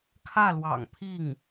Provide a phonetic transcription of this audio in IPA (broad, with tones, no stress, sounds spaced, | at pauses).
kʰ ä˥˩ l w ɑ̰˨˩ ŋ pʰ i˥˩ ŋ